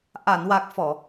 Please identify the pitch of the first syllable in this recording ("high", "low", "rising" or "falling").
low